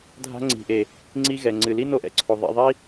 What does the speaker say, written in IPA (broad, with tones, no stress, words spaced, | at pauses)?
dʱa̤˦ŋ͡ǀi̤˨ʔe˨ | ŋ͡ǀi˦ɣɛ˨ ŋ͡ǀɨ˨li˦ no˦ʔɛ̰˨ǀʰo˨ ðˤḛ˧ ðˤi˦